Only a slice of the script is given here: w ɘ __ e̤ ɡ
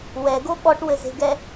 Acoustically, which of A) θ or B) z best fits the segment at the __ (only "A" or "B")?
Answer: B